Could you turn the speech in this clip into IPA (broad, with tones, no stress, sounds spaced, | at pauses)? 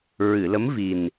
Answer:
ɹ ɨ˨˩˨ l ə˧˥ m v i˨˩ n